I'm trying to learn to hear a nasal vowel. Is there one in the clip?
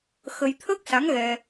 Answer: no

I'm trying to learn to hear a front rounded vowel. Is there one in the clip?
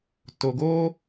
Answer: no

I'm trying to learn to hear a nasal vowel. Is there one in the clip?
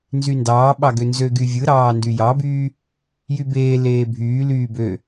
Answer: no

